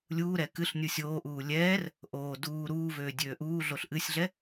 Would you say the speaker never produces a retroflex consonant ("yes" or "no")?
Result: yes